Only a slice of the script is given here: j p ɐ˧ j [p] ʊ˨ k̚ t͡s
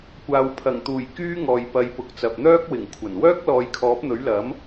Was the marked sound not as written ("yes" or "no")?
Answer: no